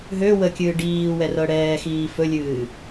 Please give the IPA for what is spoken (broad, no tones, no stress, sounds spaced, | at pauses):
ɦ ø w ə kʲ ɨː ɖ iː w ɛ r ɤ ɽ ɛː x iː f ɵ lʲ ɨː